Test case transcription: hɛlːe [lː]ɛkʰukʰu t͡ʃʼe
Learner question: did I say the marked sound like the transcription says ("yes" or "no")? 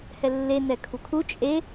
no